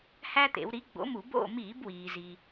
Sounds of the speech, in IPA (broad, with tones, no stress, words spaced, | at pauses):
hæ˦t̪ḛ˩˧w ɾi˨˥ɡ͡bo̰˨˥mu˧˩˧ bo̰˦˨ miː˧˩˧bwiː˩zi˩